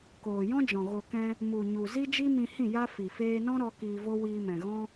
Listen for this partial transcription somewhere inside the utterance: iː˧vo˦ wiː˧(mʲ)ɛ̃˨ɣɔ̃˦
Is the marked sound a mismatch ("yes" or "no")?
yes